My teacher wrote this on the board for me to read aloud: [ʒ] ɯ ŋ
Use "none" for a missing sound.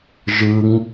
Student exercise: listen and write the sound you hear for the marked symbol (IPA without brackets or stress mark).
ʒ